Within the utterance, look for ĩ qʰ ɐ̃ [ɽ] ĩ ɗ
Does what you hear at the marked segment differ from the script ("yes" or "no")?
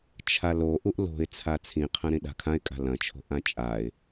yes